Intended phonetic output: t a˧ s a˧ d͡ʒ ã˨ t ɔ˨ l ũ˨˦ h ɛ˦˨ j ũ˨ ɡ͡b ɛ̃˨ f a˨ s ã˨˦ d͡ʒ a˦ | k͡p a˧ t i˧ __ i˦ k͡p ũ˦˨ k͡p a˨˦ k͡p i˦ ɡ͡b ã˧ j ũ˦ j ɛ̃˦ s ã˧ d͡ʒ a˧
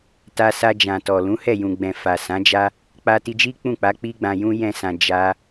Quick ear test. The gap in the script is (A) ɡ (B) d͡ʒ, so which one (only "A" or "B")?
B